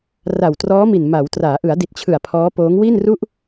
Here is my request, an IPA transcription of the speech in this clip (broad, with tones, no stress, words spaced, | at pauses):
ra˨˩wtrɔː˦˥mi˨˩n ma˩˦wtraː˩˦ʔɯ˩˦a̯ di˨˩t̚t͡ɕʰɯ˨˩a̯ pʰɔː˦˥poː˦˥ŋ wi˥˩nru˥˩ʔ